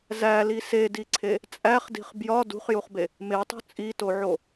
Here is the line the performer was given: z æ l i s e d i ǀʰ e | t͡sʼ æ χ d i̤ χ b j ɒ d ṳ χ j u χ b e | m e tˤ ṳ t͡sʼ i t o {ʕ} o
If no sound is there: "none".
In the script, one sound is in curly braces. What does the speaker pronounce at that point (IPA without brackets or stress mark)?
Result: ʕ